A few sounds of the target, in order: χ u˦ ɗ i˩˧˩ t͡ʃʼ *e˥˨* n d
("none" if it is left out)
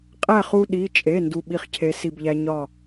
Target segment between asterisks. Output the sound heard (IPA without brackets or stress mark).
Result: e˩˧˩